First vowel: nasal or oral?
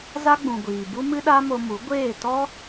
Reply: oral